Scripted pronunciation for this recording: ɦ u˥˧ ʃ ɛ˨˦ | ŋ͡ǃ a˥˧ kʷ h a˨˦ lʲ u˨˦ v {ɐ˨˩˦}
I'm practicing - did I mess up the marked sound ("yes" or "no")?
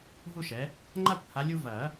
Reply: no